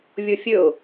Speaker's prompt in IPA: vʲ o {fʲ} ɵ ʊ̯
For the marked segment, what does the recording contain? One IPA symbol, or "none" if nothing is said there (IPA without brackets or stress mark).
fʲ